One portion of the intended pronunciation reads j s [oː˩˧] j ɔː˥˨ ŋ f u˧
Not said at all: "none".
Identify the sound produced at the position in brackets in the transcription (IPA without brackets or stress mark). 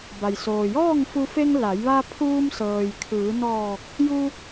oː˩